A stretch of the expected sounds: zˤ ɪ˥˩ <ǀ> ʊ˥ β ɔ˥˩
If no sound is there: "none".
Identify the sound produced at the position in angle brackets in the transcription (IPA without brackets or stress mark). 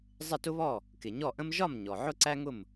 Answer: t